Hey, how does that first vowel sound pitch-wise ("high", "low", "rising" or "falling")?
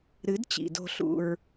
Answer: rising